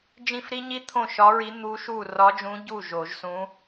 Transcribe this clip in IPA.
d͡ʒ ĩ˥˩ f ɾ i˥ ɲ i˥ t̪ʰ õ˥˩ ʃ ɒ˧˥ ɹ i˧˥ n̪ u˧˥ ʃ u˥˩ r ɒ˧˥ d͡ʒ ũ˧˥ ɟ u˥˩ ʒ o˨˩˦ ʒ s ũ˧˥

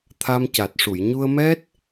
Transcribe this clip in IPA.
t̪ʰ a˧ m c a˨˩ t̚ ʂ u˨˩˨ j ɲ u˧ ə̯ m ɛ˦˥ t̚

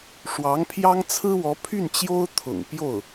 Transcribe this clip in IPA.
ʂ w ɑ˧˥ ŋ pʰ j ɑ˥ ŋ t͡sʰ ɹ̩˥ w ɔ˧˥ pʰ y˥˩ n t͡ɕ j o˥ ʊ̯ t̪ʰ ʊ̰˨˩ ŋ p j o˥˩ ʊ̯

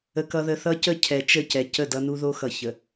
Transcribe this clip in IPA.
ə˦ k ʌ˦ ð ə˦ θ ʌ˦ c ə˦˨ cʰ ɛ˨ t͡ʃ ə˦˨ c ɛ˨ c ə˦˨ d ʌ˦ n u˦ ð o˦ x ʌ˨ ç ə˨

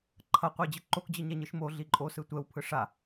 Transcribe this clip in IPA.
ǃʰ ʌ qʷ e d͡ʑ ɯ ǃ o k d͡ʑ ɯ ɲ ɛ ɲ ɯ ʃ m o ɮ i ǃʼ o s ɯ tʷ ɛ w pʰ ɯ ʂ a

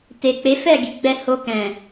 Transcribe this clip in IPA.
t e˨ k͡p e˨˦ f ɛ˦˨ ɡ i˨ ɡ͡b ɛ˧ h o˧ k ɛ̃˨

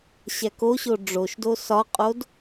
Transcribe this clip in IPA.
ɕ æ k o ɕ o ɖ͡ʐ o ʃ d o s ɒ qʼ o d

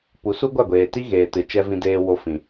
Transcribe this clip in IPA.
p u˨˦ s u˦ ɡʷ a˦˨ ɡʷ eː˨ t i˦ ɣ eː˨ t ɨ˨ t͡ʃ ɛ˧ v ĩ˧ d eː˧ w o˧ f ĩ˨

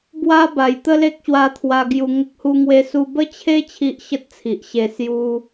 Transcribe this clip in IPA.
b w a˦ b a˨˩ j t̪ ə˦ l e˦ k̚ ɕ w a˧ t̪ʰ w a˧ ɡ j u˧ ŋ ə˦ k̚ h u˦ ŋ w e˦ s u˧ b ə˦ t͡ɕʰ e˦ t͡ɕʰ i˦ ʔ ɕ ə˦ t̚ t͡sʰ i˨ ʔ ɕ e˧ s j u˦

